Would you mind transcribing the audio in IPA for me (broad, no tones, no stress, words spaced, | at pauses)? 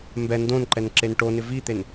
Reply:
mbɛ ndõnǃɛn ǁenʈonɪ vit̪en